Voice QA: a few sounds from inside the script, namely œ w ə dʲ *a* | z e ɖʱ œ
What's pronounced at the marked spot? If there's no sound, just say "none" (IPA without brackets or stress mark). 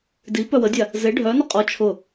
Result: a